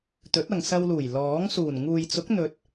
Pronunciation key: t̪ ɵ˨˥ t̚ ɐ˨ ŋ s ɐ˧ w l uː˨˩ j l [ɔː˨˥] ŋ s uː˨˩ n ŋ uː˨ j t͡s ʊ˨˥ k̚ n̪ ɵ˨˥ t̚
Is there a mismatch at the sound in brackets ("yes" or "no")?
no